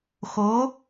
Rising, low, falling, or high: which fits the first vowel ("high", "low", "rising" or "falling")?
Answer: rising